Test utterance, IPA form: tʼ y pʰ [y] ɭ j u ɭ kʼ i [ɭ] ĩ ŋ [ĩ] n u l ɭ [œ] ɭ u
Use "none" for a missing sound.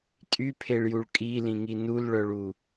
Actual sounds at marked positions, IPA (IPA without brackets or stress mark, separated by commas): e, l, i, œ